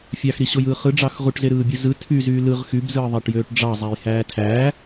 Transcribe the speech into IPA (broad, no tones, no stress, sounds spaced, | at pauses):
fʲ ɑ x ɾ i ɕ o j ɯː χ ɯ ɖ͡ʐ ɑ x ʁ u ʈ z e ɾ ɯː bʲ u z ɯ tʰ y z yː l ɯ ʁ x y b z ɯː ðˤ æ ʈ j øː ʈ ɖ͡ʐ ɑ zˤ æ j h æː tʰ æː